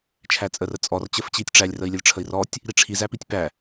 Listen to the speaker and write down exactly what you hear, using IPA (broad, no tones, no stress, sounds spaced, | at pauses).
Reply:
t͡ʃʰ æ t͡sʼ ə r ə t͡sʼ ɔ r t͡ɕ ə f t͡ɕ i tʲ ʈ͡ʂ æ lʲ r ə i̯ lʲ ə lʲ ʈ͡ʂʰ ə i̯ r ɔ tʲ | ɾ i ʈ͡ʂʰ i z æ p i tʲ p æ